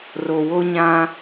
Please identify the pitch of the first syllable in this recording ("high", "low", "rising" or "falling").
low